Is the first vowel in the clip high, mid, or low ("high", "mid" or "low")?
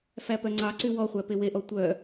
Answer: low